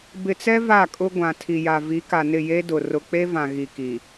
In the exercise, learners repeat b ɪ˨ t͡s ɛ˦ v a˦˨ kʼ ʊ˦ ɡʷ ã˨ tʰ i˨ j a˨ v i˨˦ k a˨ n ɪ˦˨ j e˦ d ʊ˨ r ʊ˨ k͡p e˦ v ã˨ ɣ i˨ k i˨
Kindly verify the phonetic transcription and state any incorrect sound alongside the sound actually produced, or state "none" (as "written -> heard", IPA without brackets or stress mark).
none